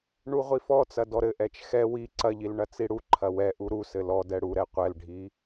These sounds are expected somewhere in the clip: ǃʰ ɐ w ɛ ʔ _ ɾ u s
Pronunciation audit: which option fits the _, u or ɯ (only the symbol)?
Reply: u